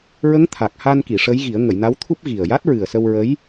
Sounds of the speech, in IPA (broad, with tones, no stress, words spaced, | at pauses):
ɹə˧˥ŋt̪ʰa˨˩k̚ha˧nki˨˩˨ ʂə˧˥jɣi˨˩˦ə̯ ŋə˨˩˨jna˧˥wt̪ʰu˦˥p̚ ɣi˨˩ə̯ ja˦˥t̚ɹɨ˨˩ə̯sə˧w ɹə˧˥j